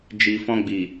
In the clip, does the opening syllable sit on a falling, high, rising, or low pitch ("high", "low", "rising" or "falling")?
low